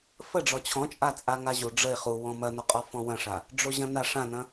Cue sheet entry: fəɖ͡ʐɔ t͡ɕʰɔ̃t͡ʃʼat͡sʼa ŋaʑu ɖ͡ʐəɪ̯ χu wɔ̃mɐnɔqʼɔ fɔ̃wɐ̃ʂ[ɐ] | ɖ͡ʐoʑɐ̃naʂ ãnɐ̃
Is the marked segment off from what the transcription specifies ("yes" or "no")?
yes